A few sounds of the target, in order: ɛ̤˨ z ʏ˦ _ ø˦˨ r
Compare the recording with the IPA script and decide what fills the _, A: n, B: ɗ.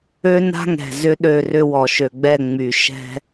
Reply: B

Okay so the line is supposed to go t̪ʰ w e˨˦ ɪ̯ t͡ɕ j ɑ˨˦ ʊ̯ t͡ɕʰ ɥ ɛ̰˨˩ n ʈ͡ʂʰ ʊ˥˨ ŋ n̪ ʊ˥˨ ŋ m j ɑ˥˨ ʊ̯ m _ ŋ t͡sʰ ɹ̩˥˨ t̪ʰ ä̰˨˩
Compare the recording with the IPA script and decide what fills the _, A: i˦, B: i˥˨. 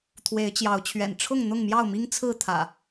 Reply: A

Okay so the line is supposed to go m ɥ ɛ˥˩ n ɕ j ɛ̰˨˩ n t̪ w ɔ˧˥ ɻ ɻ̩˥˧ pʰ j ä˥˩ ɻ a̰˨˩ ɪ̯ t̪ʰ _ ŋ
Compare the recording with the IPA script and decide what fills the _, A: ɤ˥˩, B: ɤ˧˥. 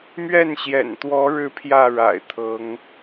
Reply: B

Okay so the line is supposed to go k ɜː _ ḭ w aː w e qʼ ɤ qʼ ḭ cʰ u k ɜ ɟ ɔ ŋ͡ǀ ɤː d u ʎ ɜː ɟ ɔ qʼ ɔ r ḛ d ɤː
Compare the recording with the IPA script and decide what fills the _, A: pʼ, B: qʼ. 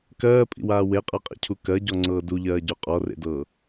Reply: A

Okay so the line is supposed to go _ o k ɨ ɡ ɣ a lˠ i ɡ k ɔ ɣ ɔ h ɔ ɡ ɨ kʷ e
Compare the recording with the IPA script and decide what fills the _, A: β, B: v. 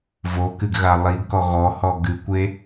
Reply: B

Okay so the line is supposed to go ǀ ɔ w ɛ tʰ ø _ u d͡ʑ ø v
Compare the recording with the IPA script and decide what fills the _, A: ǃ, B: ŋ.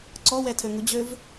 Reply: B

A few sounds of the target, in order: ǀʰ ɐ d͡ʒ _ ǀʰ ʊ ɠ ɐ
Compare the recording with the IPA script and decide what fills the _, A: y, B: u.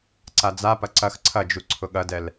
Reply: B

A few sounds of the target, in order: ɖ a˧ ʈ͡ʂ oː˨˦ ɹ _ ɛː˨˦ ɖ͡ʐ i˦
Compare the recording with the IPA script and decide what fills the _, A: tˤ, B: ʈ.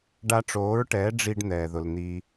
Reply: B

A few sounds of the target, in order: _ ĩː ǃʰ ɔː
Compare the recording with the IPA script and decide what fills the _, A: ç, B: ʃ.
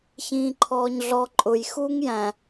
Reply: A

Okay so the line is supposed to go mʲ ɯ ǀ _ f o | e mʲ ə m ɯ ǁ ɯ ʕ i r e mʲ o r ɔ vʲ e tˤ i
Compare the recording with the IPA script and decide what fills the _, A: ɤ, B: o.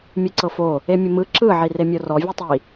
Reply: A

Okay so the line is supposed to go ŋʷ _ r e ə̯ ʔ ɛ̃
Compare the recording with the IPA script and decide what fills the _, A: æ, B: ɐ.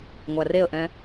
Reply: A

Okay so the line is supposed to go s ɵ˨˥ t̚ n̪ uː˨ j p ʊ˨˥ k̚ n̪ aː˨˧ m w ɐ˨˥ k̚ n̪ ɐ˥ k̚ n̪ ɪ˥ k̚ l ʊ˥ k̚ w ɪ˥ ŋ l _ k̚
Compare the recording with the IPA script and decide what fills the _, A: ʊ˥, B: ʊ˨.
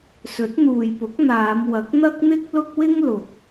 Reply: B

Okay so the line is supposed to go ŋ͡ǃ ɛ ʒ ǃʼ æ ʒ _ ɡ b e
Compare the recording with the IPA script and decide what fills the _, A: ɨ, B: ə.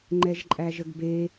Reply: B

